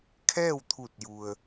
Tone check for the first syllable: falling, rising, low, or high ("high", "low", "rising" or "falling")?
falling